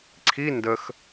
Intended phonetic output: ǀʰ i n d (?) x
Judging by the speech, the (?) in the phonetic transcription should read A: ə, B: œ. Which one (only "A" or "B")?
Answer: A